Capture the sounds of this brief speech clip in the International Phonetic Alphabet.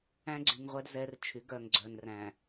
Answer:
æ̃˦ɡ͡ǀy˨ŋʁʷɛ˦d zɛ˦rt͡ʃʰy˨˦ɡœ˨ŋ ɡ͡ǀœ˨nræ̃˨

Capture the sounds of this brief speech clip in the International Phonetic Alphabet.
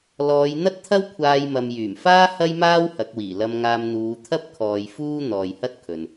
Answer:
lɔː˨˧j n̪ɐ˥t̚t̪ʰɐ˥wkʷʰaː˧jmɐ˨m jyː˨˩mfaː˥ hɐ˥jmaː˥w hɐ˨˥k̚wiː˨˩ lɐ˧mŋaː˧m n̪uː˨˧ t̪ʰɐ˥p̚kʰɔː˨j fuː˥ n̪ɔː˨jhɐ˥t̚kʰɵ˨n

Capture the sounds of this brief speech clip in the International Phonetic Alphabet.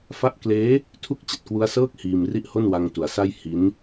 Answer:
fa˥˩ʔ kleː˦˥ | tʰu˥˩k̚t͡ɕa˨˩t̚kwu˦˥a̯sɤː˥˩k̚ hiː˧mri˥˩ʔho˥˩n wa˧ŋtu˩˦a̯sa˥˩j hi˦˥n

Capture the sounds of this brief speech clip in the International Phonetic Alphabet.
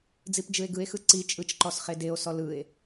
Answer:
d͡zipd͡ʒɯe̯ɡɯe̯xɯ ǀi t͡ʃʼɯt͡ʃǃɔs χedeo̯sɔ lɯe̯

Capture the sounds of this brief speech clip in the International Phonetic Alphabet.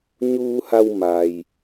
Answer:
ɲuː˧ha˧w ma˩j

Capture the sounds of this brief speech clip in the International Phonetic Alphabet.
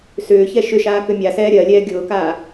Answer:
sʏːçɛ ʃʏʃaː kʏmʲasɛː ɾʲɜlʲɛː ɡʲʊːkaː

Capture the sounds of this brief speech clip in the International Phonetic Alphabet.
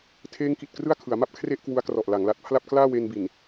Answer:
tʰeː˦˥ŋki˨˩t̚ krɯ˥˩a̯kʰɯ˩˦a̯ma˥˩p̚ kʰre˥˩ʔkwu˦˥a̯krɔ˨˩ʔ la˩˦ŋla˨˩t̚pʰla˥˩p̚ klaː˥˩we˧nbi˨˩n

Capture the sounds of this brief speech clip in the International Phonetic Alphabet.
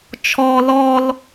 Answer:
t͡ʃʰɔ lɔl

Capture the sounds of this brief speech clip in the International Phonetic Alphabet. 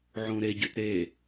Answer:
ʕũɾeɟʉt ɾe

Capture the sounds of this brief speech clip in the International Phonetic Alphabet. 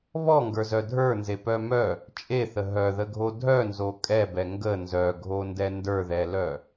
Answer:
βɔŋɡə˞zœ dʱə˞nzepœ mœ | t͡ʃʼeθə ɦœðəɡʱo dʱœnzo kʼɛbɛ ŋɡə nzœɡʱondɛ ndə˞ðɛlœ

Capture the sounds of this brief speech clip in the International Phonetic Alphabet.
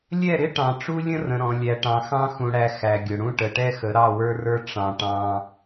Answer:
lʲɛ˦˨ɾɪ˦ ʈɑ̃˨ʈ͡ʂu˦lʲə̃˦rə̃˨ ɾɔ̃˨ lʲæ˨ʈɑ̃˨xɑ̃˦ xũ˨ɽæ˨ xæ˨ɡʲʊ˨ɽũ˦ ʈə˨ʈɛ˦xə˨˦ ɾɑ˦˨wə˞˦rə˞˦ ʈ͡ʂɑ̃˨ ʈɑ̃˦

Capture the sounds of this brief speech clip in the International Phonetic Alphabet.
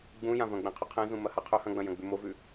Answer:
ɡ͡bũjã vɐ̃ɡ͡bẽqʰʉqʰẽ zũmɐhaqʰɵ hɐ̃ɡ͡bɐ̃jɐ̃ ɡ͡bʉmovʉ

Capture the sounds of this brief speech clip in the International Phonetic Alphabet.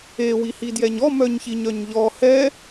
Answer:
e wihidjɛɲɔ mœɲçiɲœɲʎɔ hɛ

